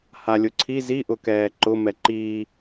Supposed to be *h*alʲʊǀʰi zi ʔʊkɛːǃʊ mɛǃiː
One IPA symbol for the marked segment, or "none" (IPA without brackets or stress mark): h